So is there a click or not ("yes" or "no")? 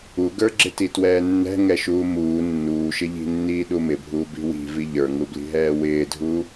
yes